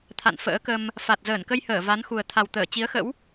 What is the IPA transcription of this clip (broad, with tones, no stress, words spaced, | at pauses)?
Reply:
t̪ʰa̰˧˨n fə̰ː˧˥kə˧m | fa˨˩t̚zəː˧˩nkə˧jhəː˧˩ va˨˦nxu˨˩ə̯ t̪ʰa˨˩wt̪əː˧˩ t͡ɕi˨˦ə̯xə̰˧˥w